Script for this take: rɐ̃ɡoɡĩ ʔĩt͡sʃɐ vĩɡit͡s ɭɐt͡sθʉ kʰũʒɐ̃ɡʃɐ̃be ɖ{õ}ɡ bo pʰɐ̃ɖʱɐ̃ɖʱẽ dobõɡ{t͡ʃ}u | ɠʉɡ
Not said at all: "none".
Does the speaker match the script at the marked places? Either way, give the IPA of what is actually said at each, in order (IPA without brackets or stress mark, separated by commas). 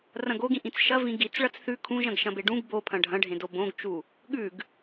ũ, t͡ʃ